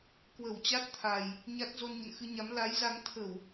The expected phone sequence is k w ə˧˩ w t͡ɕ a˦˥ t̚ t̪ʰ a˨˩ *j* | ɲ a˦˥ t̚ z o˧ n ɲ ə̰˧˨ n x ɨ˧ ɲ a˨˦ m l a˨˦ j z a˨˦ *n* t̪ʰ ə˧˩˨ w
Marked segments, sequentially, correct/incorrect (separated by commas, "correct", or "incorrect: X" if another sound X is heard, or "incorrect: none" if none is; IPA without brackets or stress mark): correct, incorrect: ŋ